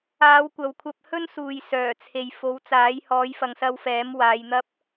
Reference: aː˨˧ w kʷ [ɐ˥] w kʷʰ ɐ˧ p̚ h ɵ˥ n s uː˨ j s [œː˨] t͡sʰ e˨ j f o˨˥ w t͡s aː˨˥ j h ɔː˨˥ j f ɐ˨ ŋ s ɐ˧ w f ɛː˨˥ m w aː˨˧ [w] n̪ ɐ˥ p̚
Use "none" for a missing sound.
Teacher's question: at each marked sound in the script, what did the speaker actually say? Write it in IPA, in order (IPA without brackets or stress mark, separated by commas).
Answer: ɐ˨, œː˨˩, j